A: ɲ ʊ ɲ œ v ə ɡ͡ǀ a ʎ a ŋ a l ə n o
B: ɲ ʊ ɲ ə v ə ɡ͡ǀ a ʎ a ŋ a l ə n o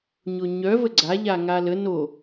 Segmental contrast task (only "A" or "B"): A